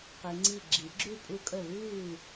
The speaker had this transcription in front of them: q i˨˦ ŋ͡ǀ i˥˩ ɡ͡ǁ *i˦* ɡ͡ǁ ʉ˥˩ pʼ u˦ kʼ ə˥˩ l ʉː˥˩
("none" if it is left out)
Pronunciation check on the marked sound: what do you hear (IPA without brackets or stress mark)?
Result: i˨˩˦